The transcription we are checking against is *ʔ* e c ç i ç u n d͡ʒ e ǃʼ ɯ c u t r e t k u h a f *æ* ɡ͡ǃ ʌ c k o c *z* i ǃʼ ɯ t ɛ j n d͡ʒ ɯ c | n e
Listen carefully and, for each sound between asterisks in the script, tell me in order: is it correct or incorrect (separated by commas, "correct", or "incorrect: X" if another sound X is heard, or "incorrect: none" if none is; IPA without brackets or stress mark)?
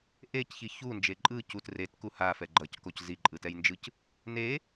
correct, incorrect: ɛ, correct